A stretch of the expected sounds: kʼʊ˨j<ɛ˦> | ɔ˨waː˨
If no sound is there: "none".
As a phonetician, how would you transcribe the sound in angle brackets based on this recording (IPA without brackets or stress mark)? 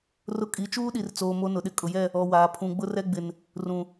ɛ˦˨